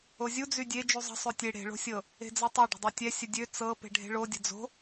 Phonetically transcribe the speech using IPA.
o zʲ u d͡z y dʲ e d͡ʒ u zˤ ə̤ sˤ ø tʲ e ɽ e̤ ɭ o̤ sʲ ɤ | e̤ d͡z ɤ tˤ ɛ ɖ ə̤ dˤ ɤ tʲ ɛ sʲ ə dʲ ø t͡s ɤ p e̤ ɖʱ e̤ ɭ o dʲ ə̤ d͡z o̤

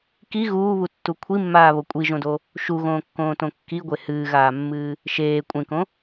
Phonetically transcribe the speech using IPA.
k i ɣ uː β u tː u kʷʰ i mː aː β o kʷʼ i ʒ õ d o | ʃ u ɣ õː kː õː t õ kː i ɡʷ e h ɨː ɣ aː mː ɨː | ʃ eː kʷʼ ẽ k õ

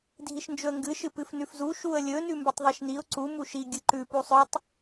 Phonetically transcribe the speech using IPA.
dʱ i ʃ n d͡ʒ ɵ ə̯ ŋ ɡ ɨ ʃ ɨ p ɨ f n ʉ f z u ʃ u ə̯ lʲ ɵ n ʉ m b ɵ tˤ ðˤ i ʃ n i ʊ̯ ǀ u m u ʃ i ɡʲ ɨ ǃ ʉ p u sˤ ɵ tˤ

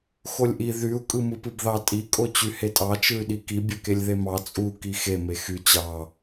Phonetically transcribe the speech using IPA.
x o lʲ ʔ i ð y u̯ kʼ ɯ m ɯ p ɯ b ð ɑ tʼ i kʼ o t͡ɕ y h e tʼ ɑ t͡ʃ ɯ y̯ ɗ i k i bʲ ø k e lʲ ð e m ɑ t͡sʼ u k i x e m e x y t͡ɕ ɑ

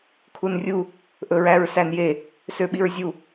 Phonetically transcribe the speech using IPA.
kʰ u n rʲ u | ʔ ɵ ɹ æ ɹ s æ n j e | s ø ɓ i ɹ zʲ u

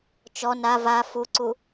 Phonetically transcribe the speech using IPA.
t͡ʃ ɔ n a v a f u ǀ u

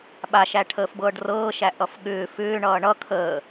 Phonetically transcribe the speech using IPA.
ɓ a ʃ æ ʈʰ əː f b ɤː ɖ r ɤː ʃ æ ʔ ʌ f ɠ ʏː f ʏː ɳ ʌː ɳ ʌ kʰ əː

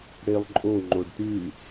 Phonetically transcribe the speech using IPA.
ɽ e lˠ ǃʼ o ŋ͡ǃ o ɖ t ʉ

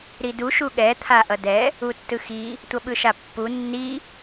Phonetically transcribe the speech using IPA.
ɾ i d u ʃ u ɠ ɛ t̪ʰ a ʔ ʌ d ɛ | u tː ɯ x i | tʷ ʌ ɓ ɯ ʃ a pː u nː i

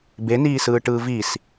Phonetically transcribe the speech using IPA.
b e n iː s ɯː ʈ ɯː v i s

